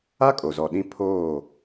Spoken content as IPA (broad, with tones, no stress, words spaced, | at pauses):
a˦kʼo˨zɔ˨ ɗĩ˦ pʰoː˦˨